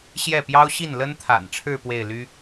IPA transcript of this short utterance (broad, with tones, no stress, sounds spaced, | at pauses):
ɕ j ɛ˥˩ p j ɑ˥ ʊ̯ ɕ i˥˩ n l ə˥ n t̪ʰ a̰˨˩ n ʈ͡ʂʰ ɻ̩˥˧ p w e˥˩ ɪ̯ l y˥